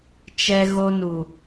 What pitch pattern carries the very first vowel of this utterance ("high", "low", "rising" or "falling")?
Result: high